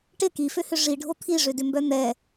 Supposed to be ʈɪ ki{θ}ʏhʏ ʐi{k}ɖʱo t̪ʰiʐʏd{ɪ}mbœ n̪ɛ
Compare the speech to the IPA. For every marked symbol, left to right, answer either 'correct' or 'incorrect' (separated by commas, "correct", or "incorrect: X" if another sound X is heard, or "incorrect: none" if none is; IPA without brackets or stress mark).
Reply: incorrect: f, incorrect: none, incorrect: ʏ